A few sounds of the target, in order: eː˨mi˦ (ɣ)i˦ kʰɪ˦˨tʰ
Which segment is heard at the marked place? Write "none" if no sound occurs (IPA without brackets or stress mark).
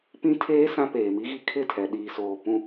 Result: ɣ